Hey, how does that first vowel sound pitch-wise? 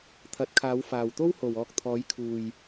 rising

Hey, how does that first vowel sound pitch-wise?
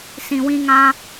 low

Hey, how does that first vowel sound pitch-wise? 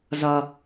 low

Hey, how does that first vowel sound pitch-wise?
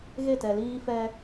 falling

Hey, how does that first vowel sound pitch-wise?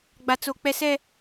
high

